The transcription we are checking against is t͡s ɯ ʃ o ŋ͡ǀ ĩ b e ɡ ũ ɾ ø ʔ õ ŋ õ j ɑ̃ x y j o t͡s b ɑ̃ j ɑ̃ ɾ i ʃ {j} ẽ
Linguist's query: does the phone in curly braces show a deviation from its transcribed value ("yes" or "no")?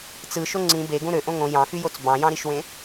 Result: yes